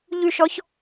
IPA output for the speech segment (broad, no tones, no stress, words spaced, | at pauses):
ʎyʃɔç